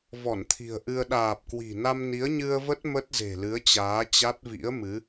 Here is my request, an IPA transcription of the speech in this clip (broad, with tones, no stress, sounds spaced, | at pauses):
v ɔ˧˩ n t̪ʰ i̤˨˩ ə̯ ʔ ɨ˧ ə̯ ɗ aː˨˩ p̚ k w i̤˨˩ n a˧ m n i˨˦ ə̯ ɲ ɨ˧ ə̯ v ə˦˥ t̚ m ə˦˥ t̚ z e̤˨˩ l ɨ˨˦ ə̯ t͡ɕ aː˨˦ t͡ɕ a˦˥ t̚ v ḭ˧˥ ə̯ m ɨ˨˦